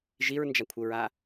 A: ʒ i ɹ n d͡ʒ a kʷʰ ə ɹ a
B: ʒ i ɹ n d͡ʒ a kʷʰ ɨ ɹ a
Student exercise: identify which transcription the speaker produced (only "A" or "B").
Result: A